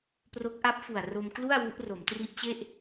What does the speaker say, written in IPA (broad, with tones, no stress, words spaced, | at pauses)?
pro˦˥k̚ʔa˦˥p̚fu˨˩a̯ ro˧mklu˥˩a̯ wu˦˥ʔro˩˦mtri˦˥ʔt͡ɕe˥˩ʔ